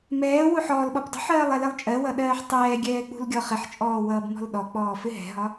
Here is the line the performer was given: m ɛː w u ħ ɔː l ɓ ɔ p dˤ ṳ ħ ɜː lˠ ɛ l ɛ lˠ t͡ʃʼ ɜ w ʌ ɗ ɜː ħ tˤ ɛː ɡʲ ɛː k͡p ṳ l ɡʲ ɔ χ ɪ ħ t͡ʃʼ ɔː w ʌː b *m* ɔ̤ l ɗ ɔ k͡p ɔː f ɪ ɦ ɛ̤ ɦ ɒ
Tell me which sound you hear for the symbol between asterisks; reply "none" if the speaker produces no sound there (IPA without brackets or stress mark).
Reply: m